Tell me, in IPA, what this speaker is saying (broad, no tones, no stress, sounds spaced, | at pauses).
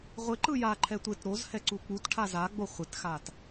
ʁʷ ɪ ǃ ɯ j a ǃʰ ɛ tʷ ɪ t ɾ o z h ɛ ǀ u k͡p u t ʈʰ a z a ɡ͡b o χʷ ɪ t x a t